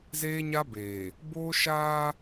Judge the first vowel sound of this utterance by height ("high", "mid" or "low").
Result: mid